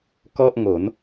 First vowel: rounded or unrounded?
rounded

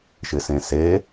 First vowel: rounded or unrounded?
unrounded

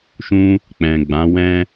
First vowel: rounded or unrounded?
rounded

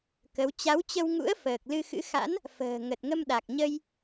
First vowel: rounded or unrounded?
unrounded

